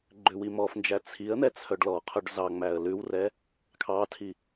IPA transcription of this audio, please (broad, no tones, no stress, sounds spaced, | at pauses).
ɡ͡ǃ ʉ w i m ɔ f n d͡ʒ æ t͡sʰ i ə̯ n̪ ɛ t͡sʰ œ ɖ l ɔ qʰ œ ɖ z ɑ ŋ͡m æ ə̯ l ʉ w r ɛ | kʰ ɑ tʰ i